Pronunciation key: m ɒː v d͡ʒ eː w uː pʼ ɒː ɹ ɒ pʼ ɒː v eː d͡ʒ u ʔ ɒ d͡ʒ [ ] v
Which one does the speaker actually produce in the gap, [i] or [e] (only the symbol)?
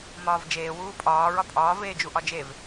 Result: e